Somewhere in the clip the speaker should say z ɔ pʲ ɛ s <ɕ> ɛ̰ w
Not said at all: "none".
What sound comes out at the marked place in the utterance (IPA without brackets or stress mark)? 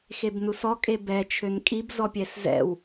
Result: z